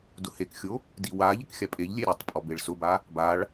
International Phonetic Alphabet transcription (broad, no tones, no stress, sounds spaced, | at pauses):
d ʊ h e k xʲ o | d i w a ʎ ɪ k xʲ a pʼ e ʎ lʲ e ɾʲ a tˤ pʼ ɔ b e ɭ s ʊ b a | b a ɭ